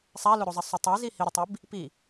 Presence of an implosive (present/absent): absent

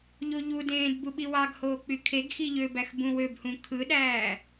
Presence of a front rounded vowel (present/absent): present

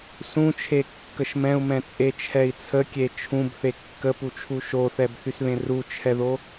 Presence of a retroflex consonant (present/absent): absent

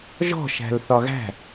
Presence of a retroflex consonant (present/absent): absent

